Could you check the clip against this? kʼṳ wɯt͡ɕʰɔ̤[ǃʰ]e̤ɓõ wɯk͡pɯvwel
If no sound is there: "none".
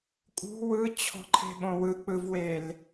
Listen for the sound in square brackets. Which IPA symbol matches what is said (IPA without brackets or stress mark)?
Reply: ǃʰ